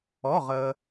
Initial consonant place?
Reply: uvular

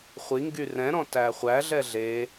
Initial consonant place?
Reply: uvular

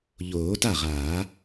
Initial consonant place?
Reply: palatal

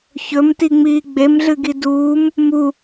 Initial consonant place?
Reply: palatal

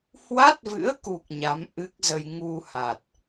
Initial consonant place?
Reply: glottal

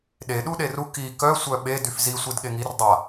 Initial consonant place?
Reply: alveolar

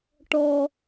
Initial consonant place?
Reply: retroflex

